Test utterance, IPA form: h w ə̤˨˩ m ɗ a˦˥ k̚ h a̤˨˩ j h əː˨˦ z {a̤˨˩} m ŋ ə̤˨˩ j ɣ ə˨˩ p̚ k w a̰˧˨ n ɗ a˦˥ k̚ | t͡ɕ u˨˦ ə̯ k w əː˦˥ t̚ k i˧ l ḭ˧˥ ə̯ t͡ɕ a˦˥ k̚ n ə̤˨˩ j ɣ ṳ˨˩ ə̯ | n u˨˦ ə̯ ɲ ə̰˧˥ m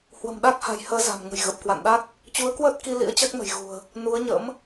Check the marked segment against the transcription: correct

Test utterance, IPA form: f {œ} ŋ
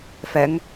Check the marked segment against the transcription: incorrect: ɛ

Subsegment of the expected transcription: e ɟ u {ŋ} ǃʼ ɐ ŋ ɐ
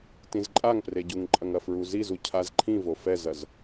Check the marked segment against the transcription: correct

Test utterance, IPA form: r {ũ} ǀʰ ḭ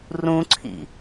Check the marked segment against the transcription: correct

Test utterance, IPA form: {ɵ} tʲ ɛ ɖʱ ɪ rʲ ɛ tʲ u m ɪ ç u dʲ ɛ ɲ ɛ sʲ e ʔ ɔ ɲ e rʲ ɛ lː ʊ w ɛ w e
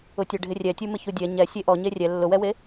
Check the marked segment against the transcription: incorrect: ʊ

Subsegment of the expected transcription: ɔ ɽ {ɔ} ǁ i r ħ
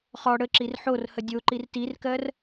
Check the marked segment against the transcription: incorrect: ə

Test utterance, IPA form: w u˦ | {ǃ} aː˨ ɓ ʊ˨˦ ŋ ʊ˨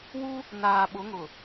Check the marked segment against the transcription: incorrect: n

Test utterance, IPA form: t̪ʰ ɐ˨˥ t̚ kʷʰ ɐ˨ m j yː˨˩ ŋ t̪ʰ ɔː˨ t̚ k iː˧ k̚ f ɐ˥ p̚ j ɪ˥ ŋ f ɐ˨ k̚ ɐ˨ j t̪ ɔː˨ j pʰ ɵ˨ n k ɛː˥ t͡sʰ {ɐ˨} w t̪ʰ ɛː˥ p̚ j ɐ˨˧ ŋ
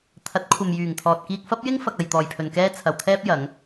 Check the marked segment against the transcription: correct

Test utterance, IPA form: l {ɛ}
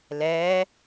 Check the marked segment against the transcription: incorrect: ɛː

